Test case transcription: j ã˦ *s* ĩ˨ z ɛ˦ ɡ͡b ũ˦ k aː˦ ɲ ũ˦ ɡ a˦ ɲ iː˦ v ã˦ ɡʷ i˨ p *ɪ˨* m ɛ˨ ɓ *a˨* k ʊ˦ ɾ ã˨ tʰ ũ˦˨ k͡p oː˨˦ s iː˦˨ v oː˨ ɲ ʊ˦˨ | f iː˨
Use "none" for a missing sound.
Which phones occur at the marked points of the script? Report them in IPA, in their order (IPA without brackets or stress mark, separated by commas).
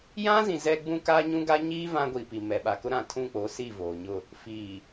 z, i˨, a˨